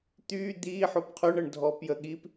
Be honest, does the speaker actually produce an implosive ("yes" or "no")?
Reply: yes